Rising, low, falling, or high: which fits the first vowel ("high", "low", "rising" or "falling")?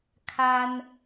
high